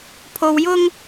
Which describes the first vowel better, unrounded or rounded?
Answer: rounded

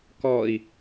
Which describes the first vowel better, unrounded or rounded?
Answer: rounded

